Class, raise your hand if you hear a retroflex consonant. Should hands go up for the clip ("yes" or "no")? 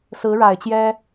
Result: yes